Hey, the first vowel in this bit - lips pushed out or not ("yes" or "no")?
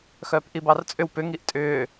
yes